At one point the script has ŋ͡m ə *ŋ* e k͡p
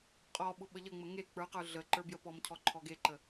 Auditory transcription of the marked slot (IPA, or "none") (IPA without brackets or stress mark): ŋ